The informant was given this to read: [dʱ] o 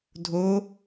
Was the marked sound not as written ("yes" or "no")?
no